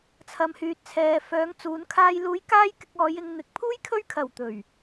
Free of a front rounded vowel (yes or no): no